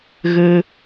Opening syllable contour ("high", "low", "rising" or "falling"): high